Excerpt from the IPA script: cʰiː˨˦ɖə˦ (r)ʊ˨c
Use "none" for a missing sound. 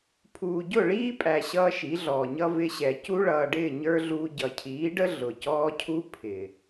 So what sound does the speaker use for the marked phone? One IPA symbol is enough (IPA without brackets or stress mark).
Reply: ɮ